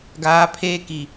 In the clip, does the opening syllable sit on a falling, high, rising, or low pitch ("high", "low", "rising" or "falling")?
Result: rising